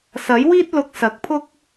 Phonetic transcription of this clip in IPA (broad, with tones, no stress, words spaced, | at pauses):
sɐ˨˥jwiː˥t̚ lʊ˧k̚sɐ˨˥k̚pʰʊ˥k̚